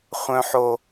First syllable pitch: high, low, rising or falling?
low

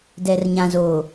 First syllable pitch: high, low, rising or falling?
low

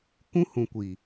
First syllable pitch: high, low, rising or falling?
high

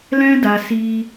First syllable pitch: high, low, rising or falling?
high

